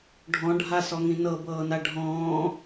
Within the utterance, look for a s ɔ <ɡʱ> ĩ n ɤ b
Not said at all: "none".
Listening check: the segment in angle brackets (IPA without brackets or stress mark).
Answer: ŋ